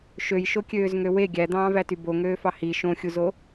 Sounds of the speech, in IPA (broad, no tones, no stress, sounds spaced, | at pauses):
ʃ ø j ʃ o kʲ øː z ŋ ø w e ɡʲ æ d̪ ɑ̃ː v æ t y b o ŋ øː f ɑ h i ʃ õ xʲ u z o